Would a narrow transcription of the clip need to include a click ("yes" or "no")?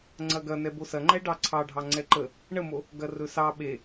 yes